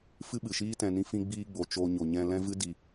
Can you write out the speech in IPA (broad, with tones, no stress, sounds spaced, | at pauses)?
f ɨ˦ ɓ ɨ˨ ʃ iː˦ t ɛ̃˧ n ĩ˧ f ĩ˧ ɡ͡b iː˧ ɡ͡b o˨ t͡ʃ o˧ ɲ o˨ ɲ ɛ̃˧ l ɛ̃˦ v ɨ˦ d i˧